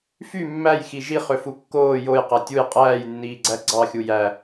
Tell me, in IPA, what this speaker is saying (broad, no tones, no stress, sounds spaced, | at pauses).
f y mː æ j x i ʒ i χ ø f u kː oː j o j q æ tʲ u j qʼ æː j nː iː ɡ͡ǀ æ ɡ͡ǀ ɑ xʲ u j æ